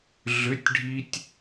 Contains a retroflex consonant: yes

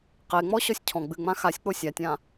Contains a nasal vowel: yes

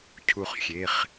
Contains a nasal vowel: no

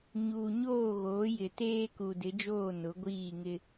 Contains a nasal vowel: no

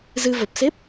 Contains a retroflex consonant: no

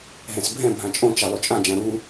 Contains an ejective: yes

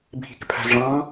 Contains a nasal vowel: yes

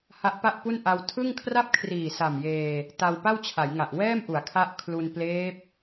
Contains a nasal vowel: no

